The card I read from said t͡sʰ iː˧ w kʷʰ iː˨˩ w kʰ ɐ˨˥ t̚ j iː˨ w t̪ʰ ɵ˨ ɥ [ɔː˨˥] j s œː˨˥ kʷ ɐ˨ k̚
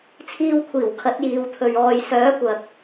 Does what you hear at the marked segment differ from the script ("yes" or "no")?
yes